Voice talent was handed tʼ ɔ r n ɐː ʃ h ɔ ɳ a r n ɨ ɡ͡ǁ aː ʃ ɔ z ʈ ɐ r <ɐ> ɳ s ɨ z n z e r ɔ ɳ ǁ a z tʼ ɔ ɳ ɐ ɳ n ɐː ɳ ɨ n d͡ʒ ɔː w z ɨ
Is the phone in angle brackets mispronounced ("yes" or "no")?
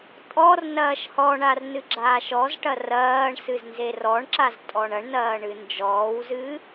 yes